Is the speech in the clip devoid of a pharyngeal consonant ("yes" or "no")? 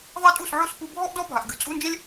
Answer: no